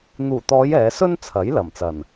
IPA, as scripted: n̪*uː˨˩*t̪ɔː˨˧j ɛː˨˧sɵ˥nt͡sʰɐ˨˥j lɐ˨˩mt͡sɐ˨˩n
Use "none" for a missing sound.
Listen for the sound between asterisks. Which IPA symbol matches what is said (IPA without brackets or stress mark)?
uː˨˩